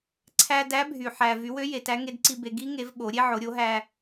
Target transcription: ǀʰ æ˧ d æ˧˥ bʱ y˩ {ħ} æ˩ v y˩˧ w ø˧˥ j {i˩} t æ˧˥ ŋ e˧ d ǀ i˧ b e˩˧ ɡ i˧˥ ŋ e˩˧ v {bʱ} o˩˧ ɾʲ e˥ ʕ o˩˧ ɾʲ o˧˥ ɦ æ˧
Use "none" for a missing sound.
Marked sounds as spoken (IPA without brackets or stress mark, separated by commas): ħ, e˩, ɓ